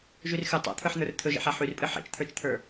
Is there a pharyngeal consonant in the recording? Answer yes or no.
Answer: yes